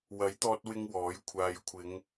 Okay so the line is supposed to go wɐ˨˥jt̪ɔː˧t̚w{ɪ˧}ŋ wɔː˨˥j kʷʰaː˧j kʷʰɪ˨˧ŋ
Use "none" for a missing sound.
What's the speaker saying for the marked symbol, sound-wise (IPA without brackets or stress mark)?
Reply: ɪ˧